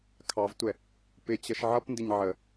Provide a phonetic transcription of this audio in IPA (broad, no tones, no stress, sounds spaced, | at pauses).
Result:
kʰ ɑ v tʷ ɛ | p ɪ t͡ɕ ʌ ʃ ʕ ʌ p n d ɪ ɲ ʕ ə